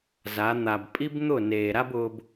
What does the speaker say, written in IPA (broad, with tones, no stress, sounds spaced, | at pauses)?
z a˨˦ n̪ a˨ b pʼ i˦ b n̪ ʊ˦˨ n eː˨ ɾ a˦ b ʊː˧ b